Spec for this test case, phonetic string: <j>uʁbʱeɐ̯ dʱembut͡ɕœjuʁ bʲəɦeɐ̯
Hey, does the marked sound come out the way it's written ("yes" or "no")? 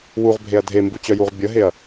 no